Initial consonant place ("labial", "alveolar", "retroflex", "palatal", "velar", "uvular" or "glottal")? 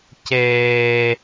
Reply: palatal